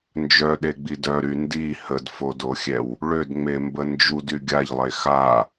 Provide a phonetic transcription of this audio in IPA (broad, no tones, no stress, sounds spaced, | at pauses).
n d͡ʒ œ ɗ e ɡ͡b i d œ ɾ y n d i h ə d f o d o xʲ ɛ w | ɭ ø d ŋ͡m e m b ə n d͡ʒ u d y ɡʲ a ʎ lˠ e x a